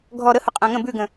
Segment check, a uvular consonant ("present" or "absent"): present